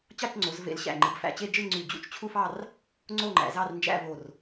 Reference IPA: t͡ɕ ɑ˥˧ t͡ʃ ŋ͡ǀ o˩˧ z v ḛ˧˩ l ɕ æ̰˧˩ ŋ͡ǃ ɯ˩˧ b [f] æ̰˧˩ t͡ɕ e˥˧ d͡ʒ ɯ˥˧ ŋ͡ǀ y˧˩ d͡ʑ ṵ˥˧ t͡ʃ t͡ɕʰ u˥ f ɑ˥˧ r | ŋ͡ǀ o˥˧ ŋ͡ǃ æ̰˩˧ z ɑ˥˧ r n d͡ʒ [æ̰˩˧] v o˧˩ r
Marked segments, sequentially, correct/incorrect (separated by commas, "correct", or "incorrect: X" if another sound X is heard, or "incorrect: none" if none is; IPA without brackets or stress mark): correct, incorrect: æ̰˥˧